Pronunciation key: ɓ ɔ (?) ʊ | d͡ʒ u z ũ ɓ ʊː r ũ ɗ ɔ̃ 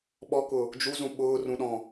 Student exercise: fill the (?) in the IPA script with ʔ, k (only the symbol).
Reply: k